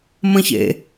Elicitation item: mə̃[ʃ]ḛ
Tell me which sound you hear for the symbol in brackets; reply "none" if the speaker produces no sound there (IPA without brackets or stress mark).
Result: ç